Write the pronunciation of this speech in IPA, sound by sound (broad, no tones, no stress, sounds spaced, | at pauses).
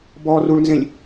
b ɔ r u ɭ n z ẽ lʲ